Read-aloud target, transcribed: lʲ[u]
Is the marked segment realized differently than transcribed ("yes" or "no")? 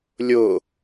yes